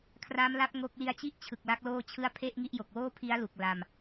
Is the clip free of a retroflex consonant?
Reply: yes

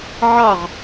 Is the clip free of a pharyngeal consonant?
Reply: no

